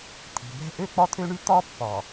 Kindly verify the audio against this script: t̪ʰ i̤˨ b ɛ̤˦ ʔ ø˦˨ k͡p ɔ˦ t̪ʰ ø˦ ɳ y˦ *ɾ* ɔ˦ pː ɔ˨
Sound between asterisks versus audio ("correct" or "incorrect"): incorrect